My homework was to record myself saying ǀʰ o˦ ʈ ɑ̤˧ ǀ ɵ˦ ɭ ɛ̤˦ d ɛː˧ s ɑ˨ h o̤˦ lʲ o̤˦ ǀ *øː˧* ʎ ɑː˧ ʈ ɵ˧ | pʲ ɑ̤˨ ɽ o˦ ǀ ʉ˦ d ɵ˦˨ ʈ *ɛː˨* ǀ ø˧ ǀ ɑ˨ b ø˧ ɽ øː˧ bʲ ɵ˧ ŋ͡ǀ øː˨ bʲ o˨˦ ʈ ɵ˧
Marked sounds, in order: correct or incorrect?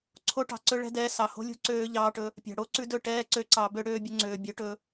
correct, incorrect: ɛː˦

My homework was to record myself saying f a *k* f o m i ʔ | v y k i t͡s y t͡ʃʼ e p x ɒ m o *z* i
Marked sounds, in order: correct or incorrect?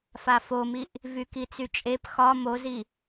incorrect: none, correct

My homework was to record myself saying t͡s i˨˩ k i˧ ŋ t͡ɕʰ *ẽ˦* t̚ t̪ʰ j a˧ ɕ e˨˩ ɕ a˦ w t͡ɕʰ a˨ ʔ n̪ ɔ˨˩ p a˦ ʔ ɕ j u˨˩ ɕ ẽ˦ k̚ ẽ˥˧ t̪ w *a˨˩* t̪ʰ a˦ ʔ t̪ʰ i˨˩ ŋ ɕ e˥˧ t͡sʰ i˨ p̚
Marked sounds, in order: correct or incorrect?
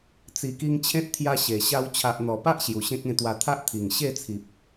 correct, incorrect: a˧

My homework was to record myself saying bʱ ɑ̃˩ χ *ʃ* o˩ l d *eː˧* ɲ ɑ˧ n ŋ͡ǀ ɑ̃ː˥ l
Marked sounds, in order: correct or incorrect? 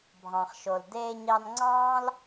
correct, correct

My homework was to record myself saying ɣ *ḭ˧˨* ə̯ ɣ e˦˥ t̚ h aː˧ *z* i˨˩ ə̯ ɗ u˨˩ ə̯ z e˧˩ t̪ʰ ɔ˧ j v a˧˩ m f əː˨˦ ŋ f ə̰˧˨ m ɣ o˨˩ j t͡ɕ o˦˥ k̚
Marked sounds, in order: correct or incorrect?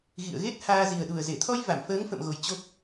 correct, correct

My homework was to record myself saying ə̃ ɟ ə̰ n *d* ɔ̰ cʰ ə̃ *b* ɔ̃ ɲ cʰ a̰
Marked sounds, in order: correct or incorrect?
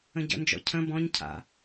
incorrect: d͡ʒ, correct

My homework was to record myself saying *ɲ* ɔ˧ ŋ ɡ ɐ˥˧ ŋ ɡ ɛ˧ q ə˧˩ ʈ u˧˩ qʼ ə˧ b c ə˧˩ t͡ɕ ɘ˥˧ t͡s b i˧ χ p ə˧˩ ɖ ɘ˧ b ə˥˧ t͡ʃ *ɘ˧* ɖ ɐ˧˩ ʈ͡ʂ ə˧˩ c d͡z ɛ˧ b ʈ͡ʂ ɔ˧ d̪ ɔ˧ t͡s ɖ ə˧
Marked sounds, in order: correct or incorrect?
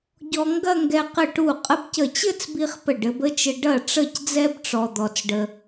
incorrect: ɟ, correct

